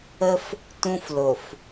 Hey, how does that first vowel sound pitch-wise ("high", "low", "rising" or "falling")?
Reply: high